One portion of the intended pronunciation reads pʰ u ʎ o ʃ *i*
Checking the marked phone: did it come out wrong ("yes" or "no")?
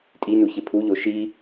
no